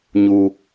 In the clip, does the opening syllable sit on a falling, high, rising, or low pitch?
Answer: low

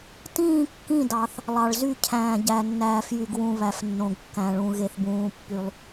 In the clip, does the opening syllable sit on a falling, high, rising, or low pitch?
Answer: falling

